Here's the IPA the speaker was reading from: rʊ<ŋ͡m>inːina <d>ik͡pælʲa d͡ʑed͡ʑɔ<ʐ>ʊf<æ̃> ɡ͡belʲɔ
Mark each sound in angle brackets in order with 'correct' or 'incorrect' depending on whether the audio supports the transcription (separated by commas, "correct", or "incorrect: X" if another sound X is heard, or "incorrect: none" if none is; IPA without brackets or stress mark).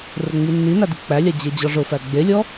correct, correct, correct, incorrect: æ